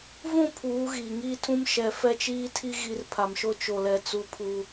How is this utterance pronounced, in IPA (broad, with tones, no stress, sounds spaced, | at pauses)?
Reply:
v ũ˦˨ pʰ uː˨˦ ɣ iː˨ ŋ iː˦ tʰ ũ˦ m ʃ ɛ˨ f ɛ˦ t͡ʃ iː˦ tʰ i˦ ɣ i˦ r pʰ a˨ m ʃ o˦ t͡ʃ o˨ l ɛ˨ t͡s u˦ pʰ u˦